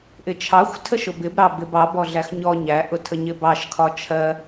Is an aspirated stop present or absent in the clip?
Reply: present